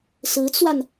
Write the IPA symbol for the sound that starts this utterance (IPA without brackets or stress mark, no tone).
s